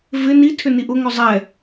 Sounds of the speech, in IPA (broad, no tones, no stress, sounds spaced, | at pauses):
v ɪ n i tʰ ʏ n i ʔ ʊ ŋ œ zˤ ɛ